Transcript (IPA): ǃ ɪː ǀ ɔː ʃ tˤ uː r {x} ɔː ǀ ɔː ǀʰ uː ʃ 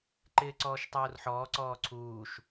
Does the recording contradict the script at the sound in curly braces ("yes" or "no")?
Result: yes